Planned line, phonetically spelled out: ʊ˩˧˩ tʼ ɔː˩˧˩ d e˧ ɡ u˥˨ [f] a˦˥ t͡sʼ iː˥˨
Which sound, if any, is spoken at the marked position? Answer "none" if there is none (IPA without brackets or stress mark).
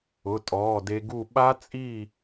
ɓ